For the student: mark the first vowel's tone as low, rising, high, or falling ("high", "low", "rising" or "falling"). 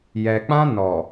low